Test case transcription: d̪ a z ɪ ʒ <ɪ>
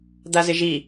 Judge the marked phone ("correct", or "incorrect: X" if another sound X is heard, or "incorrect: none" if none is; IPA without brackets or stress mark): incorrect: i